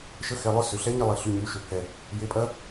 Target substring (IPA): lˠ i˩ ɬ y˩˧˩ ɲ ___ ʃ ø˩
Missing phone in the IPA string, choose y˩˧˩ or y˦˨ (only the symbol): y˩˧˩